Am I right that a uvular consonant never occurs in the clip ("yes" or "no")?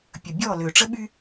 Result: yes